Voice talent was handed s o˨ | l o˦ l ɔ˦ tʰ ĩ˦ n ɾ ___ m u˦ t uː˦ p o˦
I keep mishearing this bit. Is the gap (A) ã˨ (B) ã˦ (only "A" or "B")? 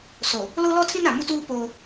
A